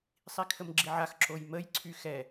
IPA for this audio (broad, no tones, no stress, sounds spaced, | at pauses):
sˤ i kʰ ə m ɡ͡ǁ i ʕ a x ǁ o j m ə j ǀʰ y x ɛ